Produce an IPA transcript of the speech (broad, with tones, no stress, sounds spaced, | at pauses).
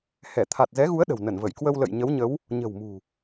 h ɛ˧˩ t̪ʰ a˨˩ t̚ z ɛ˨˦ ɣ u˨˦ ə̯ ɗ ə̤˨˩ w n ə˧˩ n v ə˧˩ j k w ə˧ w l ə̰˧˨ j ɲ ə˨˦ w ɲ ə˨˦ w | ɲ ə̤˨˩ w m ṳ˨˩